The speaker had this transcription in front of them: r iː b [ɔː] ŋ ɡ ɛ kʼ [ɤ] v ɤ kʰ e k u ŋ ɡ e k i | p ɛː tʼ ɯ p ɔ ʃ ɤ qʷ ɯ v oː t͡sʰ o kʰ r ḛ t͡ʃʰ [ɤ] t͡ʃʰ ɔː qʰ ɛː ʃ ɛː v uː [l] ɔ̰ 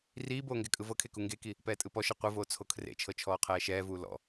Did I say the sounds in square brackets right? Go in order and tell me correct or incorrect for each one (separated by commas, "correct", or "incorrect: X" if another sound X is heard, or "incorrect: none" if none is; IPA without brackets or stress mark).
incorrect: oː, incorrect: ɯ, correct, correct